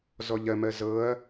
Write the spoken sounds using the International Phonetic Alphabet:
zɔʎɜmɜ zɤɐ̯

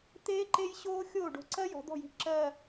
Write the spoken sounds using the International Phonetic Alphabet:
t̪eː˥ ǃe˥jɕoː˥ xʲoː˥˩ɖo̤˧˩ǀɜ˥ jɔ̤˩˧d̪ɔ̤˥˩ji̤˧˩ ǁɜ˧˩

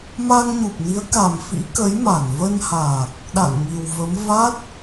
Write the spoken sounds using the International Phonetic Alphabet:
ma˧ŋɲu˨˩p̚ni˨˦ə̯ka˨˩m fḭ˧˥kə˨˦jma˧˩n və˧nhaː˨˩k̚ | ɗa̰˧˨n ŋi˨˩wvə˨˦m va˦˥t̚

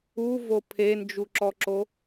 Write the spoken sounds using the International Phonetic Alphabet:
uvo pʰend͡ʒuǁɔǁo

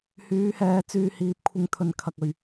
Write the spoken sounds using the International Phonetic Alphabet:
hyː˨˧hɛː˨˧ t͡syː˨hiː˨p̚kʷʰɪ˧ŋt̪ʰɵ˨n kʰɐ˨k̚ɵ˨ɥ

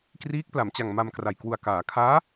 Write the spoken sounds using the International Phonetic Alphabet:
kriː˦˥k̚pla˩˦mt͡ɕa˨˩ŋ ma˧mkra˨˩j kwu˨˩a̯kaː˩˦kʰaː˦˥

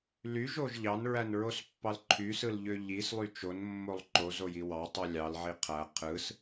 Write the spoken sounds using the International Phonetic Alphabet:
lyʒoʒ ʎɑnɹænɹospːɑl ǃʰysɯlʎø ʎislˠy t͡ʃonmːolˠ ǃozoji wɑtˤu lʲɑlʕi qʰæ qʰɯs

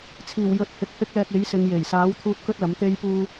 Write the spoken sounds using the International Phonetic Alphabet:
t͡sʰiː˨˩wjɵ˨˥t̚hɪ˨k̚ hɪ˥k̚lɛː˧k̚ e˨˥jsɪ˨˧ŋje˨˩j saː˨˥wt̪ʰuː˧t̚ kɵ˥t̚lɐ˨˥mt̪e˥jpuː˥

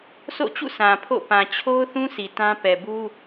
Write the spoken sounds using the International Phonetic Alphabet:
sʰo̰˦˨t͡ɕṵ˦˨ sʰã˨pʰo̰˦˨ pã˨t͡ɕʰo˦ʊ̯ θũ˦si˨ tã˦ pɛ˨bu˦

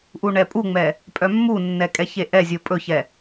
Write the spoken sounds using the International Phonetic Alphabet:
ʔuɳɛpʼuŋ͡mɛ | pʼœmːunːɛ kʼɛçeʔɛzʲo pʼɵçɛ

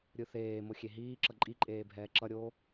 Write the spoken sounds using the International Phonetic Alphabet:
ɾʲɯθeːmo xʲeɦiːǁʌ ǃʼiǃʼeː bʱɛːǁʌɾʲoː

